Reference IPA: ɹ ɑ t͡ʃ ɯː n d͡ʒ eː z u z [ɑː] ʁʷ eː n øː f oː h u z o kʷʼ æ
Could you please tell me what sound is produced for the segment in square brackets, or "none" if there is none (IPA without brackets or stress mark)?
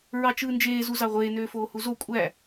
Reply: ɑ